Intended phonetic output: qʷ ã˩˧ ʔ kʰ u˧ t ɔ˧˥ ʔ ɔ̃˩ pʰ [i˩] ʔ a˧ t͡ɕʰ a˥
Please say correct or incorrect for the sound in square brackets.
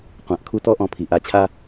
correct